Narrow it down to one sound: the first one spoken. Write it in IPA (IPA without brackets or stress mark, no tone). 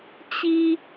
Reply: t͡ɕ